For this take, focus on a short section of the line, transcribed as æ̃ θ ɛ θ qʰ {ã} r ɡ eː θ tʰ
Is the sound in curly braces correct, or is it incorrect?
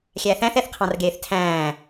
incorrect